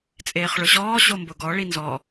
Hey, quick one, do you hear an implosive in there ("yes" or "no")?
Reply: no